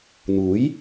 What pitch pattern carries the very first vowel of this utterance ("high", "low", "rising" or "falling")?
rising